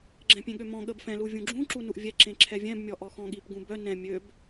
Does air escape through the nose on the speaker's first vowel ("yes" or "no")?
yes